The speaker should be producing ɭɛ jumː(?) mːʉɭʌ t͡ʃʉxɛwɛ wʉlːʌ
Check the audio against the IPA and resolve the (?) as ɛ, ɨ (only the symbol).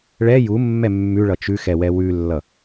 ɛ